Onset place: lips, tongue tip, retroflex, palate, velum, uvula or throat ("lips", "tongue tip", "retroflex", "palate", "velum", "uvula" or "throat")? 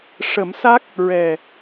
retroflex